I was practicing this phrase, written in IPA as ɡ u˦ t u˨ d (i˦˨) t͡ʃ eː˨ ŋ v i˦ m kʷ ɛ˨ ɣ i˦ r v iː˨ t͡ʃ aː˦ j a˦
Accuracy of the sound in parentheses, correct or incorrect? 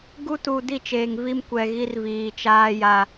correct